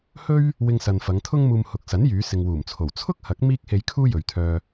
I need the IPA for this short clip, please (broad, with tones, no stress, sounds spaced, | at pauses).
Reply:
h ɵ˥ ɥ | w ɪ˧ ŋ s ɐ˨ n f ɐ˨˧ ŋ t̪ʰ ʊ˥ ŋ m uː˧ m h ʊ˨ k̚ s ɐ˨˥ n j yː˨˧ s ɪ˨ ŋ w uː˨˩ m t͡sʰ o˨˩ w t͡sʰ ʊ˥ k̚ h ɐ˨˥ k̚ m iː˥ k̚ h e˧ j kʰ uː˥ j ɵ˨ ɥ t̪ʰ œː˧